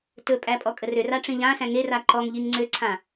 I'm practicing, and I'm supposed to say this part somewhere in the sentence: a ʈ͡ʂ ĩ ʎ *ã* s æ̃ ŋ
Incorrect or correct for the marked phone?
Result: correct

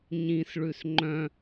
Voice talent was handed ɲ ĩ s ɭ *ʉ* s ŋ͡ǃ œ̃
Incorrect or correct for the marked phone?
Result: correct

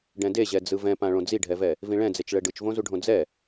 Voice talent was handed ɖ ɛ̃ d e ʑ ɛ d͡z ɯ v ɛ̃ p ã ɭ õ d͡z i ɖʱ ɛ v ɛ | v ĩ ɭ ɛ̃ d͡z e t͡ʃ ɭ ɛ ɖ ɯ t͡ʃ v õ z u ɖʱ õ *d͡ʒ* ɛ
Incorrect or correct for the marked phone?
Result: incorrect: d͡z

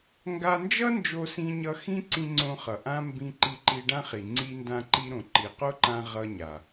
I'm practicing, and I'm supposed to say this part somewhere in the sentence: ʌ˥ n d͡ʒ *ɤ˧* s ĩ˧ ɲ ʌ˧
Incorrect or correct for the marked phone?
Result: incorrect: o˧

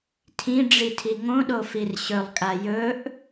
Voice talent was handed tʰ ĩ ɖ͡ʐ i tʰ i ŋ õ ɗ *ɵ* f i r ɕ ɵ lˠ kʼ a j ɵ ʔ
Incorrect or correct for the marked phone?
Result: incorrect: o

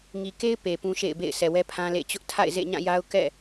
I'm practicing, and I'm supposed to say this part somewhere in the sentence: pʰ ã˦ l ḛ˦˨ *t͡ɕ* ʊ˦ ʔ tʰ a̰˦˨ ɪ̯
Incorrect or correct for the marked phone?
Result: correct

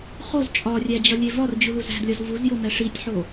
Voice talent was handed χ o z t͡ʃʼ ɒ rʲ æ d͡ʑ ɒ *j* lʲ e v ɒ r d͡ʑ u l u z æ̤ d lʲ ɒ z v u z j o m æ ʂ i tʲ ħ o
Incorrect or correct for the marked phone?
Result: incorrect: none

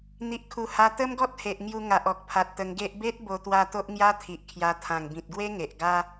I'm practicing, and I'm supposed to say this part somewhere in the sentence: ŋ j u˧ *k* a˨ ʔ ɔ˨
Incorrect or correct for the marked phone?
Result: incorrect: ŋ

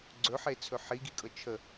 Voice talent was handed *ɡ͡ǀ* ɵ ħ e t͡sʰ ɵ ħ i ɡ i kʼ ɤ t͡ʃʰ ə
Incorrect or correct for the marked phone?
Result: correct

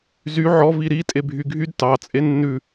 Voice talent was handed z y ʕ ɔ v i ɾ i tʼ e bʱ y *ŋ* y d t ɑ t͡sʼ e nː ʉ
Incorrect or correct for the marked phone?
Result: incorrect: ɡʱ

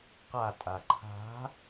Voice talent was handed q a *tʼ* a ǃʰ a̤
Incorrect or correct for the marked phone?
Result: correct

